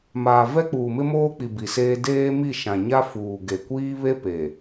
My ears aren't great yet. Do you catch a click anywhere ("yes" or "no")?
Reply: no